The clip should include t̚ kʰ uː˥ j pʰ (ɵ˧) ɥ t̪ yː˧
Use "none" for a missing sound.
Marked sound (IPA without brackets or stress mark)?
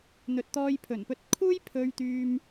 ɵ˧